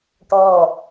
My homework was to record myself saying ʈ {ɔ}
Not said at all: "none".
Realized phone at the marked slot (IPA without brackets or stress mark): ɔ